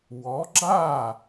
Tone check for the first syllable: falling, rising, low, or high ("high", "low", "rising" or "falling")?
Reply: rising